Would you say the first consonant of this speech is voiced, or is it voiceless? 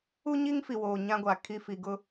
voiced